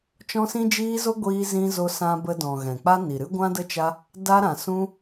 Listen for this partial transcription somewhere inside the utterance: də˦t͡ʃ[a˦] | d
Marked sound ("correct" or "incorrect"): correct